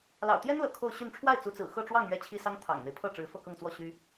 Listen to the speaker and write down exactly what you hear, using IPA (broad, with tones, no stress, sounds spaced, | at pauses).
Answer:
l ɑ̰˨˩ ʊ̯ t̪ j ɛ˥ n l ɤ̰˨˩ kʰ o˥˧ ʊ̯ ɕ y˥˧ n ʈ͡ʂʰ w a˥˩ ɪ̯ t͡s u˧˥ t͡s ɹ̩˨˩ x ɤ˥˧ ʈ͡ʂ w ɑ˥˧ ŋ ɥ ɛ˥˩ t͡ɕʰ i˥ s ɑ˥ ŋ t̪ʰ ɑ̰˨˩ ŋ n̪ e˦ ɪ̯ pʰ ɤ˥˩ ʈ͡ʂ ɻ̩˧˥ f ɤ˥˧ k ɤ˥˧ ŋ t͡s w ɔ˥˩ ɕ y˥